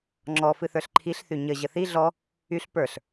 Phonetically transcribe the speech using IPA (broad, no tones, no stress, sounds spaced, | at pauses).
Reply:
ŋ͡ǁ ɔ f ɨ θ ə˞ ɬ ǃʰ i ɬ θ y ɲ ə ʑ ə θ i ɮ ɔ | y ɬ p ə˞ ɬ